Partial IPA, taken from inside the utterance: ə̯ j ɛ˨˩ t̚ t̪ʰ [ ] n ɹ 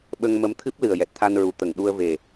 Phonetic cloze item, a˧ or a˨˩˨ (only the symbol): a˧